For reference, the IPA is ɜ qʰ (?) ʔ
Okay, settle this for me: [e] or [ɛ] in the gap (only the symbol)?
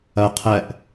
ɛ